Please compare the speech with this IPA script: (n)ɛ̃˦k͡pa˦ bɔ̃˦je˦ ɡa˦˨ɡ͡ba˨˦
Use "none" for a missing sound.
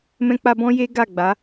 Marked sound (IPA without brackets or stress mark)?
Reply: m